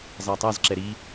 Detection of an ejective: absent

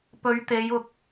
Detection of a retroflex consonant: absent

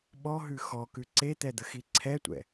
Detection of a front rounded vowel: absent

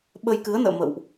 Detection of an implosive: present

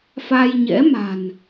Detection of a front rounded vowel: absent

